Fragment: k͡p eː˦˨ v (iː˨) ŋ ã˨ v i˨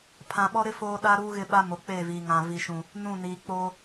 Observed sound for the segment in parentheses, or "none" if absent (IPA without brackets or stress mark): iː˨